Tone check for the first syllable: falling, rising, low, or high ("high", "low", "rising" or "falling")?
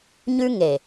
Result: high